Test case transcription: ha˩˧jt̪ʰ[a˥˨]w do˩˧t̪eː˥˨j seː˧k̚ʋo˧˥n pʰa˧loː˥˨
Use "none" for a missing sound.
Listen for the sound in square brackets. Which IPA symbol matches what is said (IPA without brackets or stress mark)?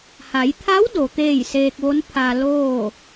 a˧˥